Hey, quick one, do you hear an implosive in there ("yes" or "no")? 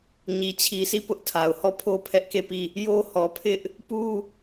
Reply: no